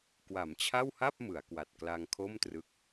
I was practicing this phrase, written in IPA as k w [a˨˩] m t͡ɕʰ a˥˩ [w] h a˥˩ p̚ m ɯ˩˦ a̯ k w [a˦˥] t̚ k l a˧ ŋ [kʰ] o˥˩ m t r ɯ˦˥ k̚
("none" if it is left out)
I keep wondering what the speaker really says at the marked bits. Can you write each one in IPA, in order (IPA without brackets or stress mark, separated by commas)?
a˩˦, w, a˨˩, kʰ